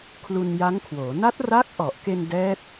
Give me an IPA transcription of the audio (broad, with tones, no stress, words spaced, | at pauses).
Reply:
kʰlu˧nja˦˥ŋkʰwoː˩˦ na˦˥t̚ra˦˥k̚ʔɔ˨˩ʔke˧n dɛː˦˥t̚